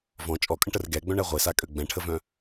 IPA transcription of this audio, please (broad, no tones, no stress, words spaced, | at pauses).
vɔ̃ t͡ʃʼɔkʼə̃ʈər ɡɛɡ͡bœ̃ɳɛ ʁʷesakʼø ɡ͡bɛ̃ʈʰəvœ̃